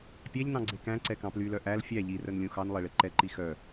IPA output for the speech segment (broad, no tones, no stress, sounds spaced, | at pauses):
pʲ æ ʎ n ɑ̃ ɡ͡ǀ e k æ̃ ǀ ɛ k ɑ̃ p l y l œ ʔ æ l fʲ æ ʎ i r œ n lʲ ũ x ɑ n lˠ e ɭ e ǃ ɛ ǃ i x œ